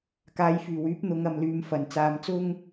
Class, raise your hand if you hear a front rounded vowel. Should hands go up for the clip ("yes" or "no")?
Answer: yes